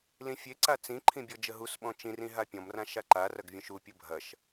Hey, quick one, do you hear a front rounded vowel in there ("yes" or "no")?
no